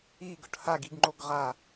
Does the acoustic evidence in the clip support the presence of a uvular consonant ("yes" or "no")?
yes